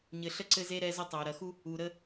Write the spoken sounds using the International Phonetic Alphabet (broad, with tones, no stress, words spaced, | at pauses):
ɲɘ˨ɬə˧ǀɘ˧ze˧ ɾɛ˧zə˧ tˤæ˨ɾɐ˧xu˦ | u˨ɾə˧